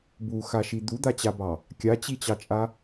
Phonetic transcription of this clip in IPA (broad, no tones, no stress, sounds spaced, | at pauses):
b u x a ʃ i d̪ u d̪ a t͡ɕ a b ɑ | kʲ a t͡ɕ i t͡ɕ ɑ t͡ʃʼ a